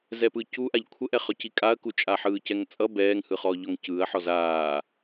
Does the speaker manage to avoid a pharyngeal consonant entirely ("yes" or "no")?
no